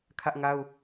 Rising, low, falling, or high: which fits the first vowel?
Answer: high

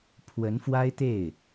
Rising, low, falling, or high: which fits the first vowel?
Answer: rising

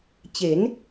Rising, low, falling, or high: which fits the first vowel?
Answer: rising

